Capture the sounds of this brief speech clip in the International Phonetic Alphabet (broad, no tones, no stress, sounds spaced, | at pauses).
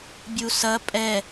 bʲ u s ɐ pʼ ɛ